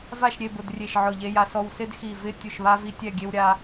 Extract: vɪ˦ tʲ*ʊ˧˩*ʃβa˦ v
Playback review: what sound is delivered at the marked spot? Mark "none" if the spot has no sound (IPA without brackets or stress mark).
ʊ˧˩